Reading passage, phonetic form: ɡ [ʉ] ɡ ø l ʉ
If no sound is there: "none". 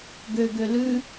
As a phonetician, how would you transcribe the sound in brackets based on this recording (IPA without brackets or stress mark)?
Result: ø